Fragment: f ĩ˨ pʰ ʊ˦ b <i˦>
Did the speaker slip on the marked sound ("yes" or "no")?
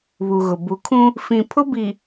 yes